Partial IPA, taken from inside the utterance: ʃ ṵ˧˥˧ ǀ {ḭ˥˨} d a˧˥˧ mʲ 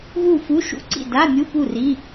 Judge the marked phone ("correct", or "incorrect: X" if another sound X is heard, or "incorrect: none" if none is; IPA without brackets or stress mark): correct